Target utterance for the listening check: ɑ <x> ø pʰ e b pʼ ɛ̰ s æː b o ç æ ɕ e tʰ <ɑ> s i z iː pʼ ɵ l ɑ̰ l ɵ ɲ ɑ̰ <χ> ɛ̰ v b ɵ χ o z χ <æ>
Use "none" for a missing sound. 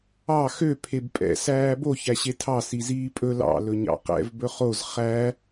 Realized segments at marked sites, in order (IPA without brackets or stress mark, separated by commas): x, ɑ, q, æ